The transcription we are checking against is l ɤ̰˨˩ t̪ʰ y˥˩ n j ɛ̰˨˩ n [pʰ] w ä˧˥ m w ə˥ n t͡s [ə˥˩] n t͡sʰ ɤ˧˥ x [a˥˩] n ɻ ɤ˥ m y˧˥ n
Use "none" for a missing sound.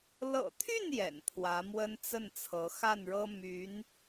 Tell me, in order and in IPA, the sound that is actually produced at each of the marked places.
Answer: pʰ, ə˥˩, a˥˩

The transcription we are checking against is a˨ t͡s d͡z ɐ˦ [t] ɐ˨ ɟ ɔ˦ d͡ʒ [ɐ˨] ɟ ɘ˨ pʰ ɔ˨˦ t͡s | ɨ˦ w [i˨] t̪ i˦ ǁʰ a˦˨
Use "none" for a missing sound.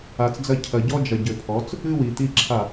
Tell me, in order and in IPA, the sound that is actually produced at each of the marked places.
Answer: cʰ, ɐ˨, i˨

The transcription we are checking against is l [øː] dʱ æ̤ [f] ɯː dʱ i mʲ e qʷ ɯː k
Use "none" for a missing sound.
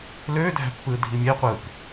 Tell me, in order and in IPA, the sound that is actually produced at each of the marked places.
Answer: øː, pː

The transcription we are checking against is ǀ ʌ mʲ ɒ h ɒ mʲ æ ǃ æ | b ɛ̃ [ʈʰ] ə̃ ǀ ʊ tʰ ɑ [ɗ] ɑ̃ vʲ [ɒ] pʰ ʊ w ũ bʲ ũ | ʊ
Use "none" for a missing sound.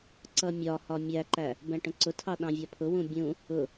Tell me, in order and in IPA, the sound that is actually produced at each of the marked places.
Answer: ʈ, ɗ, ɒ

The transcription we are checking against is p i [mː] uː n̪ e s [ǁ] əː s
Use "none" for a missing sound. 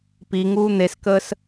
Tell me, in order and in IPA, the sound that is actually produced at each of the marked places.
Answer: ŋ, k

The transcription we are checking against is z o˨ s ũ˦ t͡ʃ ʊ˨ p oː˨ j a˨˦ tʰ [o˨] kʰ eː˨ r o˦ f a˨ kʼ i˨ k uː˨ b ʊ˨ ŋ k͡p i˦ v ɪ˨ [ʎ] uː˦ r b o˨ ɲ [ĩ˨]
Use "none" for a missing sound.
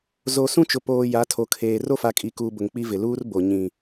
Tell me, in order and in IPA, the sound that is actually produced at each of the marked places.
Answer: o˨, l, ĩ˨

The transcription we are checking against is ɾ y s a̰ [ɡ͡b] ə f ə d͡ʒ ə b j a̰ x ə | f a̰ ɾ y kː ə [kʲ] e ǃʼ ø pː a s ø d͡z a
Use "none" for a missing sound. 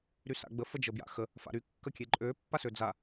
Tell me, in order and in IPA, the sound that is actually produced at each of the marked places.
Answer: ɡ͡b, kʲ

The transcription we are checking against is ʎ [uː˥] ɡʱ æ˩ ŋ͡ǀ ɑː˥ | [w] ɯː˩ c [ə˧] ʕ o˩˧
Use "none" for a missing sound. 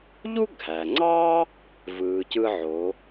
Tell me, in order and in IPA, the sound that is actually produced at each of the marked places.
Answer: u˥, v, ɯ˧

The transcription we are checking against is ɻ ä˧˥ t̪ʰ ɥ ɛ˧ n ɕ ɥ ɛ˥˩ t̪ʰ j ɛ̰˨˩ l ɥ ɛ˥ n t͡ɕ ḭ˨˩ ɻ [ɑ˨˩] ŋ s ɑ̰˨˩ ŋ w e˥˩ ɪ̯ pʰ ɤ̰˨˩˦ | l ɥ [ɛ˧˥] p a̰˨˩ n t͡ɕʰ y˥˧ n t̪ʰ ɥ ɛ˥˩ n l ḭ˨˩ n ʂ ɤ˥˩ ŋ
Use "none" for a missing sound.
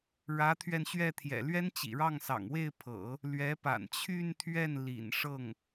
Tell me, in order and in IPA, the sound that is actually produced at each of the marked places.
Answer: ɑ˥˩, ɛ˧˥

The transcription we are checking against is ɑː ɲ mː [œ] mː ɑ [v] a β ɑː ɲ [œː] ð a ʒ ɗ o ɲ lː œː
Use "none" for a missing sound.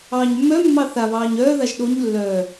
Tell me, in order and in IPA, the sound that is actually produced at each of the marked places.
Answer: œ, θ, œː

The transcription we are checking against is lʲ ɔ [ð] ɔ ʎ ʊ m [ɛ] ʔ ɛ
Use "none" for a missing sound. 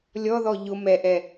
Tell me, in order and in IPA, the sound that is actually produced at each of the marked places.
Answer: ð, ɛ

